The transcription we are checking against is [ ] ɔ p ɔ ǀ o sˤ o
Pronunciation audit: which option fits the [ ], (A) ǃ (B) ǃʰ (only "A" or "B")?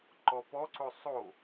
A